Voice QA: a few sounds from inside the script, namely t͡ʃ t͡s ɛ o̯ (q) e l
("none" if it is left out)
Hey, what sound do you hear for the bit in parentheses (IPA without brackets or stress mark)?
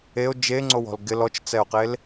q